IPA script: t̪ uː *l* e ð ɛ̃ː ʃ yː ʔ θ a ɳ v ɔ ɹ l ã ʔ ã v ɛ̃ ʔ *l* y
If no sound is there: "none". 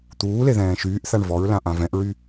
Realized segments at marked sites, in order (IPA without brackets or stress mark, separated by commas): l, ɹ